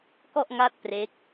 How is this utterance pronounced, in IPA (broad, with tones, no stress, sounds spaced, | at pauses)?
k ɔ˥˩ ʔ ŋ a˥˩ t̚ p r e˦˥ k̚